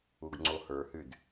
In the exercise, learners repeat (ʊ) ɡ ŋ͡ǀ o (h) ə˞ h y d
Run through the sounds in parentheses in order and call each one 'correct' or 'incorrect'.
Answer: incorrect: u, correct

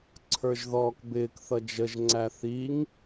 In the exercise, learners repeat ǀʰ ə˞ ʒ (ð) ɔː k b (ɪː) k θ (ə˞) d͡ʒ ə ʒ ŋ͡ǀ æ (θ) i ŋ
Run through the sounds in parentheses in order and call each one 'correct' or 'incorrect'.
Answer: correct, correct, incorrect: ʌ, correct

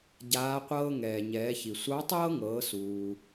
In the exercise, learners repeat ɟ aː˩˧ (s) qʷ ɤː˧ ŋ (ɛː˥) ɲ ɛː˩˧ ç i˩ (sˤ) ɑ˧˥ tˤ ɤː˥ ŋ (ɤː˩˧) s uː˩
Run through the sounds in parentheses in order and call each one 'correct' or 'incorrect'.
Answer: incorrect: none, incorrect: ɛː˩, incorrect: sʷ, correct

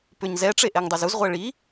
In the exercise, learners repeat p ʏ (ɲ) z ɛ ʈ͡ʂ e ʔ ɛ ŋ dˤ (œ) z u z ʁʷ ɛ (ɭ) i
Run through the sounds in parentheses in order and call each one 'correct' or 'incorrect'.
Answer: correct, correct, correct

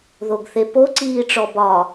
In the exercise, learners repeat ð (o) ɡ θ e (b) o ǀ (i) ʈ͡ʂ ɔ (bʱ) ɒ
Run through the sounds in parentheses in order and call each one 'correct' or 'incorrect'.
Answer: correct, incorrect: p, incorrect: iː, incorrect: b

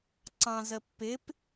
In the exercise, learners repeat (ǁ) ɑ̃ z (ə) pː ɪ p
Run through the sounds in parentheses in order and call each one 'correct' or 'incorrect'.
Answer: incorrect: ǀ, correct

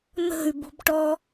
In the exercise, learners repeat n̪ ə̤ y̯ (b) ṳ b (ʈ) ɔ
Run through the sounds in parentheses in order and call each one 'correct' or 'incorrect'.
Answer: correct, correct

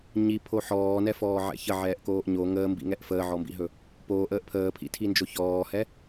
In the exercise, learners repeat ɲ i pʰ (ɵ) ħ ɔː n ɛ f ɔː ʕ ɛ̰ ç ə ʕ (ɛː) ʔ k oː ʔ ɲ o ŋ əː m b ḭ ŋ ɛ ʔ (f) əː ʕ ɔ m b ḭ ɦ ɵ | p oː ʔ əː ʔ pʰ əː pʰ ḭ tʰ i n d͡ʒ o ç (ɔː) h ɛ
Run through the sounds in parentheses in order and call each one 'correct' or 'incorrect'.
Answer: incorrect: o, correct, correct, correct

